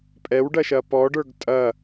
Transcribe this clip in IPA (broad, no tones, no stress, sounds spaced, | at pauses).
pʼ ɛ w ɖ ɐ ʃ ɐ p ɔ ɖ ə˞ ɡ tʼ ɐ